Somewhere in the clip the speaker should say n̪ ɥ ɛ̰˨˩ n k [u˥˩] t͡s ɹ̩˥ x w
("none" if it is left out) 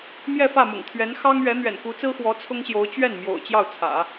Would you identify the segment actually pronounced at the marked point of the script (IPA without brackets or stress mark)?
u˧˥